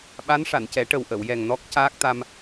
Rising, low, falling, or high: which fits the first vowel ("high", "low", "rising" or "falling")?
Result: rising